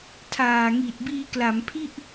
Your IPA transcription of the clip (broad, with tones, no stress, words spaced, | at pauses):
tʰaː˨˩ŋiː˨˩t̚ biː˧kla˩˦mpʰi˥˩ʔ